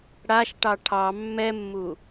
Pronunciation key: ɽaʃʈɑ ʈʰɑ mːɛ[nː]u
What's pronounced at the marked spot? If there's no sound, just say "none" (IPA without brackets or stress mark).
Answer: mː